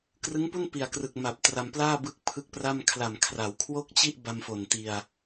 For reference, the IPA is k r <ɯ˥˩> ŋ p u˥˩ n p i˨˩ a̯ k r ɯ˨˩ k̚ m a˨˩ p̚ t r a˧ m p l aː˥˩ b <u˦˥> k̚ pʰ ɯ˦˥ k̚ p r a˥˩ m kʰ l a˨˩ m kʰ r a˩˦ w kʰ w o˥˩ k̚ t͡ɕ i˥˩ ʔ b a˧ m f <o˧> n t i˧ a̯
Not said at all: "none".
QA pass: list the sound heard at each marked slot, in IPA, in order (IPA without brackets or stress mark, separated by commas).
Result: ɯ˦˥, ɯ˦˥, o˨˩